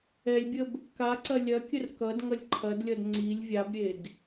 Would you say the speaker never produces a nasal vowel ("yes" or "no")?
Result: yes